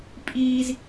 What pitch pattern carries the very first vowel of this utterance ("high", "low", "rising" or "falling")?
high